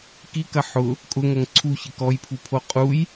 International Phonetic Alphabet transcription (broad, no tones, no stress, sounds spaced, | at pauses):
k i k ɐ ħ ʊ | kʼ ʊ ŋ ɐ ŋ ǀʰ u ç ɪ k ɔ j pʰ u pʰ o qʼ u j